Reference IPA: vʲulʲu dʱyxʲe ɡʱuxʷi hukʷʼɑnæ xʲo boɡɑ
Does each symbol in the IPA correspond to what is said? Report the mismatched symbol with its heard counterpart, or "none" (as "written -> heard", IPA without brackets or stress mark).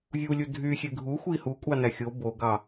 none